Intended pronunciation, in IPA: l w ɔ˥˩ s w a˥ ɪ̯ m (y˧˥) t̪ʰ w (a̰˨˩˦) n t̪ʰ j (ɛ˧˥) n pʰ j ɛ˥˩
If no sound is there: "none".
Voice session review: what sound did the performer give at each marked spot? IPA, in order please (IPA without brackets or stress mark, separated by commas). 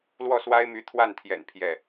y˧˥, a˥˩, ɛ̰˨˩